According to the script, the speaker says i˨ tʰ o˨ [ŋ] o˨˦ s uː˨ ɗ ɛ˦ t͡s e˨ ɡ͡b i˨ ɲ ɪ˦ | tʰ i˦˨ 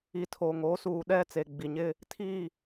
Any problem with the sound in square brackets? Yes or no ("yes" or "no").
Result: no